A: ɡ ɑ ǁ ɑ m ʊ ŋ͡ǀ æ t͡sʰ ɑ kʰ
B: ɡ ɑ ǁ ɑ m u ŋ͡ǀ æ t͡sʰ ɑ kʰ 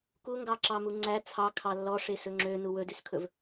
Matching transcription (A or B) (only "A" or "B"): B